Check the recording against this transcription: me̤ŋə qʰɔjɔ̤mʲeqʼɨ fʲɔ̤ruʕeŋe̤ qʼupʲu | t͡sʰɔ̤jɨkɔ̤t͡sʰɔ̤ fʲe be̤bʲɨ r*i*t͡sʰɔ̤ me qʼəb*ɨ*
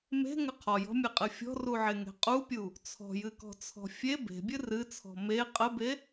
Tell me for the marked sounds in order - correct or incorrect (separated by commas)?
incorrect, incorrect